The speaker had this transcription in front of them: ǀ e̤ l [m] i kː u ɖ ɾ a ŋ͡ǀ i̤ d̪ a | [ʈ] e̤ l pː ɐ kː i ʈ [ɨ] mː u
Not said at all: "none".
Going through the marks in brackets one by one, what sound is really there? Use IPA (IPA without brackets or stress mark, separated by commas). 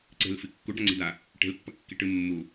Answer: f, ʈ, ɨ